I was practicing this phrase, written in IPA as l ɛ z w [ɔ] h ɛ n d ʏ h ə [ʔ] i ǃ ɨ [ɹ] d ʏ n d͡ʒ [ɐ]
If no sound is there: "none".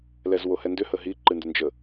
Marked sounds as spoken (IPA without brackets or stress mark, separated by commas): o, ɦ, n, ə